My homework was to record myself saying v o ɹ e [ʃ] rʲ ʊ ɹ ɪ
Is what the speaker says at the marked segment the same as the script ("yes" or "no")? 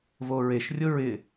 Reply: yes